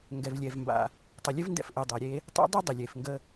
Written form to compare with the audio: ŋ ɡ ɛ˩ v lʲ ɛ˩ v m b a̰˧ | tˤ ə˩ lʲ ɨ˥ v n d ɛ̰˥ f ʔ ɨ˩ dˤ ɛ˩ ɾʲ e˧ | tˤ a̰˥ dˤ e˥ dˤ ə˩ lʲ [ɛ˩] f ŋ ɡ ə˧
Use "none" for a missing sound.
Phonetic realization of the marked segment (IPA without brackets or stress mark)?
e˩